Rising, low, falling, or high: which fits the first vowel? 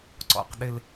low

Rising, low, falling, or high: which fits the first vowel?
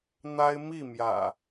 high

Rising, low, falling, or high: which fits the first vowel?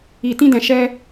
low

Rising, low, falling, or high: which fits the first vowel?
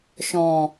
low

